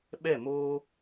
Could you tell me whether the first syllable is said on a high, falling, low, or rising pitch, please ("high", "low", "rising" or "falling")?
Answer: falling